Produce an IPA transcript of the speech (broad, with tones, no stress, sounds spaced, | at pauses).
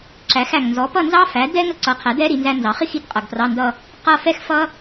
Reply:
ǁ æ˨˥ x æ˨˩ ŋ n z ɔ˨˥ p ʌ˥˧ n z ɑ˥ f æ˨˥ d ɛ˥ ŋ ə˥ ǀ ʌ˨˥ qʰ æ˨˥ d ɛ˥ ɾ i˨˥ n z æ˥ n z ɑ˨˥ χ i˥˧ x i˨˩ t qʼ ʌ˨˩ ɡ p r ɑ˧˥˧ n d ʌ˥˧ | q ʌ˥˧ f ɛ˥ x f ʌ˥